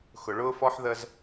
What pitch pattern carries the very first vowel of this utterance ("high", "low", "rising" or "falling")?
low